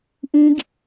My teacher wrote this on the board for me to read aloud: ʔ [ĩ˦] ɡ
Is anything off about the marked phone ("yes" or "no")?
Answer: no